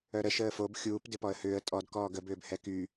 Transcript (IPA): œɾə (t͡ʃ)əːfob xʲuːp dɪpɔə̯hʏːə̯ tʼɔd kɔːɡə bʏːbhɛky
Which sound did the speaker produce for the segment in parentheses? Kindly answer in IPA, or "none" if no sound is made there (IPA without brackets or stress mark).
ʃ